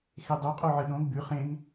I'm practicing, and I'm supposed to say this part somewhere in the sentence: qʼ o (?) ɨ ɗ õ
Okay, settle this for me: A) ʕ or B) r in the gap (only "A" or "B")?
A